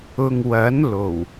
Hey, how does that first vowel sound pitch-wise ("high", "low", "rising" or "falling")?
low